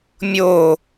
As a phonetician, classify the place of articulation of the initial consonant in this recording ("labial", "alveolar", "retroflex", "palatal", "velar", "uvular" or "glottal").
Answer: labial